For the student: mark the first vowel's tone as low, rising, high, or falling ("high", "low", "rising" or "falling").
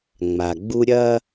low